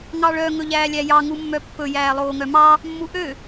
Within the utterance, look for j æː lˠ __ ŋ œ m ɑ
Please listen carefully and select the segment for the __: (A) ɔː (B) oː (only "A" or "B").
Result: B